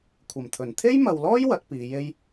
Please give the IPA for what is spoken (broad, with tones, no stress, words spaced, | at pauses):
kʷʰɐ˨˩mt̪ʰɵ˨˩n t̪ʰe˥jmɐ˨wlɔː˥j wɐ˨˥t̚piː˨˧je˥j